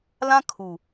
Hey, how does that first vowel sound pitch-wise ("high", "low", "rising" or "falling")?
high